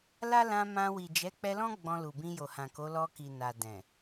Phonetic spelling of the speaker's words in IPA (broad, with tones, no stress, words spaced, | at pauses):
la˦lã˧mã˧ wi˨d͡ʒɛ˨˦k͡pɛ˧lɔ̃˦ ɡ͡bɔ̃˧lu˨bĩ˧ jo˨hã˨ko˨˦lɔ˧ ki˨ na˨dɛ̃˨